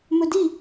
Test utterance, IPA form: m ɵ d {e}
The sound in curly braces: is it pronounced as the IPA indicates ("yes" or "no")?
no